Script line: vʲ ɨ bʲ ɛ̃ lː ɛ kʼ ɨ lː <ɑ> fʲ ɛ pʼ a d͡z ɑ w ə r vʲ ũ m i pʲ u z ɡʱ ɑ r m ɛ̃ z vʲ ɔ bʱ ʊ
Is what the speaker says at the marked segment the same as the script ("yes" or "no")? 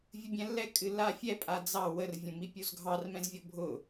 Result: no